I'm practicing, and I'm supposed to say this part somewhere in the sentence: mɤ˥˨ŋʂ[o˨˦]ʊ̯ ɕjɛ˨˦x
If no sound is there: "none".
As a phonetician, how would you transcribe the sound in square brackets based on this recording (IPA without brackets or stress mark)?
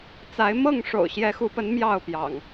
o̰˨˩